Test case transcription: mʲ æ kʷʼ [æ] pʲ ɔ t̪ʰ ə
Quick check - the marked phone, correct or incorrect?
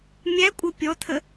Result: incorrect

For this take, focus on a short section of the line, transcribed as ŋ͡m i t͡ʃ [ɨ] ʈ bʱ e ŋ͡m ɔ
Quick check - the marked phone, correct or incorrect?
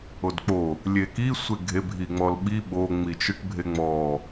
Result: correct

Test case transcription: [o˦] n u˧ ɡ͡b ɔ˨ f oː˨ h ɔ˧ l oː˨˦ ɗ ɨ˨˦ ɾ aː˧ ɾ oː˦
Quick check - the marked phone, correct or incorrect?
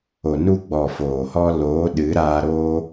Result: incorrect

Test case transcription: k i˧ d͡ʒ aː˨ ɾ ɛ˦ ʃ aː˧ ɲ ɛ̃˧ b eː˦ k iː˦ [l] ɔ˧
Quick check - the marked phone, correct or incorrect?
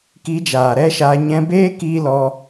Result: correct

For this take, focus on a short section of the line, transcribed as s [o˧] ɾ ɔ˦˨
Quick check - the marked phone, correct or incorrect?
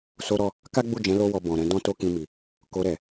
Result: incorrect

